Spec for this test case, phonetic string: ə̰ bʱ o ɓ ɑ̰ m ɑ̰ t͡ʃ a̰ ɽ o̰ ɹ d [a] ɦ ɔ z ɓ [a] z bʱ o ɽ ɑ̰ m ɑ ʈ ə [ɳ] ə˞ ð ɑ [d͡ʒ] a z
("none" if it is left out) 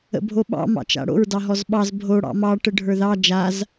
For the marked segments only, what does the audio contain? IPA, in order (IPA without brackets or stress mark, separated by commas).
ɑ, ɑ, ɖʱ, d͡ʒ